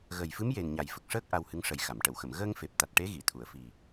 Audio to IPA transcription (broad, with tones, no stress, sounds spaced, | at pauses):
ɣ ə˨˩ j f ɨ˧˥ m j e˨˩ n ɲ a˨˩ j f ə˨˩ k̚ ʂ əː˦˥ k̚ ʔ a˧ w h ɨ˧˥ ŋ ʂ ə˨˩˦ j x a˨˩˨ m ʈ ə˨˩˨ w x ə˨˩˨ m ɣ əː˧ ŋ f e˨˩ p̚ t̪ a˨˩ t̚ ʈ e˧˥ ɣ i˨˩˨ t̪ʰ u˨˩˨ ə̯ f i˨˩